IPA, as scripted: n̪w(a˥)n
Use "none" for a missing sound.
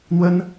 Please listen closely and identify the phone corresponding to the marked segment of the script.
ə˥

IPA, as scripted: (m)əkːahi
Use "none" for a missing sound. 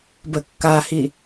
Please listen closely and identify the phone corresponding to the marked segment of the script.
b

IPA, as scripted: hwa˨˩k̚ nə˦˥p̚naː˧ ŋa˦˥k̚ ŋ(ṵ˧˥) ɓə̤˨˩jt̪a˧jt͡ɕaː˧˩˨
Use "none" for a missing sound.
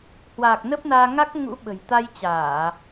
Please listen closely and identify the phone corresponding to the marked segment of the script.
ṵ˧˥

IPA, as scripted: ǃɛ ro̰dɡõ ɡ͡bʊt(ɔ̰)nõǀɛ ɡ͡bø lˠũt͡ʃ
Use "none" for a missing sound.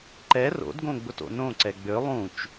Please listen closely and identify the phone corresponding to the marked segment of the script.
o̰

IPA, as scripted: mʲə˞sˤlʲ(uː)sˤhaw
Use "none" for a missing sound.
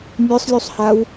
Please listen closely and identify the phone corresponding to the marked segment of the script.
u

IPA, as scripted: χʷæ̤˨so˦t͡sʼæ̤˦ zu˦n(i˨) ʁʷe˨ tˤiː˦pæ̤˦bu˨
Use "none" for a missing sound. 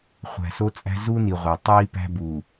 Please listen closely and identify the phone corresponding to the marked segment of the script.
i˨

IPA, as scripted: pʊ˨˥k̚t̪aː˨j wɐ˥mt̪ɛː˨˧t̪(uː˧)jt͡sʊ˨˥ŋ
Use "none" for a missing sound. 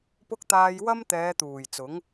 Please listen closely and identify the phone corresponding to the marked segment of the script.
uː˨˩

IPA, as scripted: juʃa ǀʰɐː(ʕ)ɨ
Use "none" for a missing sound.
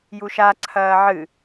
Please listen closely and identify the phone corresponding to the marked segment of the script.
ʕ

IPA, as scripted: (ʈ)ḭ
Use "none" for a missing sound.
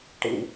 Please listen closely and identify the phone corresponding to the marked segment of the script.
ʈ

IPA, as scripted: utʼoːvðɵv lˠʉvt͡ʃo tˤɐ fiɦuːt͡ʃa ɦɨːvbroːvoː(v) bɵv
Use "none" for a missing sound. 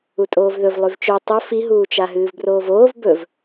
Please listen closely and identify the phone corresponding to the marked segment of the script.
v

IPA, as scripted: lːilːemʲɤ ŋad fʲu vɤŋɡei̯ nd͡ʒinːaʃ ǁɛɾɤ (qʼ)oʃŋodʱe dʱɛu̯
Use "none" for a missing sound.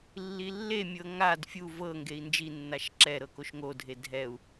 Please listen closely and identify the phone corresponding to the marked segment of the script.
k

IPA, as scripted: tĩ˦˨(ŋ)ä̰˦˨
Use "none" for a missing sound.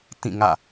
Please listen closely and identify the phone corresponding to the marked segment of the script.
ŋ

